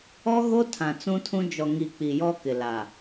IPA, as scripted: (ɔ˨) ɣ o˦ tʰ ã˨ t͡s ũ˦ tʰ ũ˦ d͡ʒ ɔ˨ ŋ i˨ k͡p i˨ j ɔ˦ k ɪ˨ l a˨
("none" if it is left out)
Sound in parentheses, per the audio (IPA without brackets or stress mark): ɔ˦